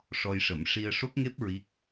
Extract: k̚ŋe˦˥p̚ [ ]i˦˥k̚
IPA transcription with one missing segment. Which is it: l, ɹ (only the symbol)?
ɹ